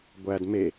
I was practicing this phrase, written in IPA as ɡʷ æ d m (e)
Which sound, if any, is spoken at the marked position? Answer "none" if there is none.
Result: e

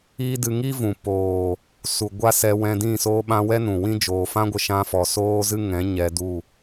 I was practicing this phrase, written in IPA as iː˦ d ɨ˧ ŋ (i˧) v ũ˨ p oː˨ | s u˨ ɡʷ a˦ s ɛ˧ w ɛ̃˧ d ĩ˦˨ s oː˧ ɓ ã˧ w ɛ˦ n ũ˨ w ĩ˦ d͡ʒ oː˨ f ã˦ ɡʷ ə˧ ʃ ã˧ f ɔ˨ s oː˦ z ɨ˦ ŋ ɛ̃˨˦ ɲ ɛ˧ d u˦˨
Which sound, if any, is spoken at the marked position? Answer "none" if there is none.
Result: i˦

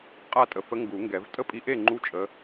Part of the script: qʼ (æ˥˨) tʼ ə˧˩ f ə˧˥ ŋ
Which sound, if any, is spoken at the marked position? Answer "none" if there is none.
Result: a˥˨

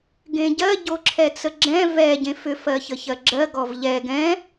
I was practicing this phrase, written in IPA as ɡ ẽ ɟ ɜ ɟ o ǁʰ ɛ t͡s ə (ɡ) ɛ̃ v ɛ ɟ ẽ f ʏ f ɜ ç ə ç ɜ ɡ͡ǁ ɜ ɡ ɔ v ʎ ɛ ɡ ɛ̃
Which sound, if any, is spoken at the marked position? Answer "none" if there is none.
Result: ɡ͡ǁ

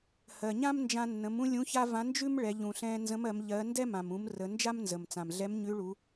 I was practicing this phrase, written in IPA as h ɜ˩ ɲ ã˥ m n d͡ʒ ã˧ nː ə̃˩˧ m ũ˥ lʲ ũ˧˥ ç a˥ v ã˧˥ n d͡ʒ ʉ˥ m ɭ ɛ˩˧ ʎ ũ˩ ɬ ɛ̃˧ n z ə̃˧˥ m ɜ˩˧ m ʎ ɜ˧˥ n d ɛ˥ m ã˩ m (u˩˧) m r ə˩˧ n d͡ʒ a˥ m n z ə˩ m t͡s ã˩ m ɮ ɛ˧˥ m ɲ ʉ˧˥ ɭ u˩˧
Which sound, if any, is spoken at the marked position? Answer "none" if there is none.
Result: ũ˩˧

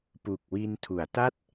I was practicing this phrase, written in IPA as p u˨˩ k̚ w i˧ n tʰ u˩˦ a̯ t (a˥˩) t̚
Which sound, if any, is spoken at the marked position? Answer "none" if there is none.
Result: a˥˩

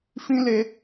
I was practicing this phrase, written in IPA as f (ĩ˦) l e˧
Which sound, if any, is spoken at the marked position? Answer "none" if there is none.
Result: ĩ˦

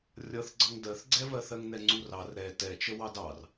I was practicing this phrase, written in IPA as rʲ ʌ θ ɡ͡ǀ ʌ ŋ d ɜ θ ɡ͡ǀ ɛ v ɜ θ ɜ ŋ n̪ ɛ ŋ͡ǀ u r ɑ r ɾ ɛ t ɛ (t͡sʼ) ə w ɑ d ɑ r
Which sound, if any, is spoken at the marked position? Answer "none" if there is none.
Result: t͡ʃ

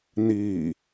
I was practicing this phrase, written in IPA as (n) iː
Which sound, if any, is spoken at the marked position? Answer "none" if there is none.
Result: n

